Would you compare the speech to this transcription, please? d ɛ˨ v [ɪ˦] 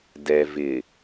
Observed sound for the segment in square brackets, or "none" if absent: ɪ˨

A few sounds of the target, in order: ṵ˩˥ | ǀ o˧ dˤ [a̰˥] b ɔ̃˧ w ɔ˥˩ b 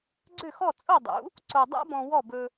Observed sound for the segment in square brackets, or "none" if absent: a̰˥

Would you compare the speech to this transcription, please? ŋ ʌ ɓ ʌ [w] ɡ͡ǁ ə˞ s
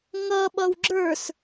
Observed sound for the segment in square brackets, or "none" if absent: w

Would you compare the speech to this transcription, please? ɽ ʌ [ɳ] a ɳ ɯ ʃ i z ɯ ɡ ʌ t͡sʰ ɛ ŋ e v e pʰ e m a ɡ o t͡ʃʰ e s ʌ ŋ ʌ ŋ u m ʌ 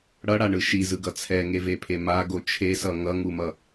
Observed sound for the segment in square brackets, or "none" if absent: ɽ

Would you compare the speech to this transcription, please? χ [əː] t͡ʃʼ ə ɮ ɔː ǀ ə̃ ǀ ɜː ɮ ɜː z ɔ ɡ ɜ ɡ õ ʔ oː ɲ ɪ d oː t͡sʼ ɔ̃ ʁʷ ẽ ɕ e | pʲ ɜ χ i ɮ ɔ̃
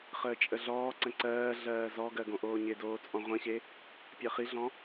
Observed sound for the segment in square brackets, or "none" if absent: əː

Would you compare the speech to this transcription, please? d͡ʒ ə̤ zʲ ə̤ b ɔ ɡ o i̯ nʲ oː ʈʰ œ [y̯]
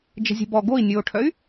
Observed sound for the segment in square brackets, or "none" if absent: y̯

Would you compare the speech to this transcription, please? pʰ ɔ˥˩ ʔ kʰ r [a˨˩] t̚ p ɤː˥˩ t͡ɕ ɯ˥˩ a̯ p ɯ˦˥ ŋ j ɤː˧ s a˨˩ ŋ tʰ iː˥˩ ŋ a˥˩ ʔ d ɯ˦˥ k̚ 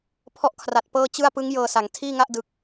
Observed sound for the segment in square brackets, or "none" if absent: a˨˩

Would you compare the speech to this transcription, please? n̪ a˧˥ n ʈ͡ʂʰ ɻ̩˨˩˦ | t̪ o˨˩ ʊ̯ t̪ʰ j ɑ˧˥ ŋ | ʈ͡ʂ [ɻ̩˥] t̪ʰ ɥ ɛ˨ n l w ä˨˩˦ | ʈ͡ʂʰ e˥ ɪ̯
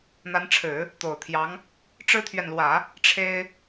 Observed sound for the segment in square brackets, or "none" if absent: ɻ̩˥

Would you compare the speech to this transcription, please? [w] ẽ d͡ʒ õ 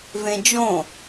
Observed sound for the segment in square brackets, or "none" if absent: v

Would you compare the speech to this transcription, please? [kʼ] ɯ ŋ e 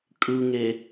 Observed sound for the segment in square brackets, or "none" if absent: kʼ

